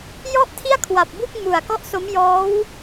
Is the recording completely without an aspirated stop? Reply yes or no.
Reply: no